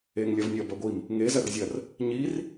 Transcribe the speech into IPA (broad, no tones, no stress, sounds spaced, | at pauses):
e ŋ lʲ ɐ v nʲ ɐ b ɐ ɡʷ i m | ŋ e z ɐ r zʲ ɐ r | ɲ i r